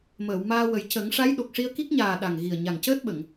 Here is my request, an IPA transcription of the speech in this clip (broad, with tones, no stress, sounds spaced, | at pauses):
m əː˨˩˨ w m aː˧ w ə˨˩ j c ə˨˩˦ ŋ ʂ a˧˥ j ɗ o˨˩ k̚ ʂ i˧ ə̯ k i˦˥ k̚ ɲ aː˨˩ ɗ a˨˩ ŋ ɣ i˨˩ ə̯ ɲ a˨˩ ŋ c əː˦˥ t̚ ɓ ə˨˩˨ ŋ